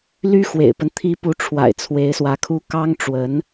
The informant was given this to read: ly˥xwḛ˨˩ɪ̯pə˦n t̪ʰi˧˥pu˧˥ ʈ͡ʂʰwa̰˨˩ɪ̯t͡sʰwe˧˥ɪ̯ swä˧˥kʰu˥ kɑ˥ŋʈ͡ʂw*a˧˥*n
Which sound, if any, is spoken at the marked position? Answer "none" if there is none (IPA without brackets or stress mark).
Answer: ə˧˥